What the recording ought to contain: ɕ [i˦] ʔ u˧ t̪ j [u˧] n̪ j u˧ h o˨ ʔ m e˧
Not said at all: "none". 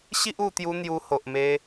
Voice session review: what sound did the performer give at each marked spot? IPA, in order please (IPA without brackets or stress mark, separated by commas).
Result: i˦, u˧